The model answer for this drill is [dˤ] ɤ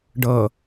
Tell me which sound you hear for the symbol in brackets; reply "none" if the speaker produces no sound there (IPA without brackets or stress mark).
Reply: ɖ